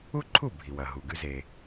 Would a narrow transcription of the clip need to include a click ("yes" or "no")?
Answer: yes